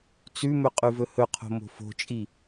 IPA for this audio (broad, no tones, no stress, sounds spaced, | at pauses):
t͡s ʉ m ɵ qʼ ʉ v ɵ h ɵ qʰ o̤ m o̤ f o̤ t͡ʃʼ i